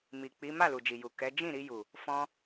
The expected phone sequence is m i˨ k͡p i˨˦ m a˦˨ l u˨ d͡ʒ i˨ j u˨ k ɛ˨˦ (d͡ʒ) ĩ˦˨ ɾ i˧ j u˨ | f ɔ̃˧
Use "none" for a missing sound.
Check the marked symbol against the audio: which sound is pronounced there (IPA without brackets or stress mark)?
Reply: d͡ʒ